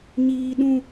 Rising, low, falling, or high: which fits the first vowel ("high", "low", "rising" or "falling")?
high